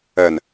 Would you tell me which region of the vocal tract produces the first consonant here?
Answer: tongue tip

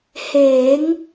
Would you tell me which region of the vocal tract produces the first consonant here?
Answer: throat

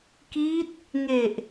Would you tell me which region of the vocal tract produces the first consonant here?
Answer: velum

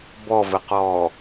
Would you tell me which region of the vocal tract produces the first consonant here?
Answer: lips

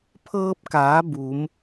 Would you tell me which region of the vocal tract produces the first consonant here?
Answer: lips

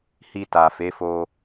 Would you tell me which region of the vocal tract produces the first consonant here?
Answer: throat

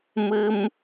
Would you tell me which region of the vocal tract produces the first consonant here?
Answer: lips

